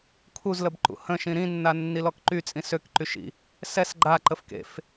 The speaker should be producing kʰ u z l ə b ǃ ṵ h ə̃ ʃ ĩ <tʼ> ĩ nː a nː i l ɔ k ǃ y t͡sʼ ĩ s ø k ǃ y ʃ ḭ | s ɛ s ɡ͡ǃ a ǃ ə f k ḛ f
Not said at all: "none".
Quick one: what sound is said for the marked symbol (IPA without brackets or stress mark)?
ɾ